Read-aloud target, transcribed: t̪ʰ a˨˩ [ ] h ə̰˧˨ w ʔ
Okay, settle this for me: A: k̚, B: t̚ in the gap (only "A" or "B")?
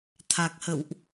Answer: A